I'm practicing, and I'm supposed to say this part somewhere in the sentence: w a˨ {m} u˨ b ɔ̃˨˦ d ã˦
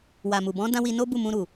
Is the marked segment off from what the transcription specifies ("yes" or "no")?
no